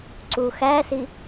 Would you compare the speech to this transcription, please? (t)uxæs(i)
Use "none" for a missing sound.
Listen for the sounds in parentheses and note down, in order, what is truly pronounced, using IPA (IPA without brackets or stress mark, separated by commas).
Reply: ǀ, i